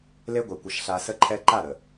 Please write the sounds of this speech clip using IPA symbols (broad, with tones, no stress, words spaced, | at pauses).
le˦ɡʷɛ˨kʷə˨ʃ ɬa˨sə˦ǃʰɛ˦ ǃa˦˨ɾə˨